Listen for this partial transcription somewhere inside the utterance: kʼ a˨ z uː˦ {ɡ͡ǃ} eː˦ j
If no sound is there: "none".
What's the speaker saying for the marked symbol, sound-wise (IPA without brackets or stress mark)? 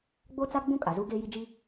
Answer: ɡ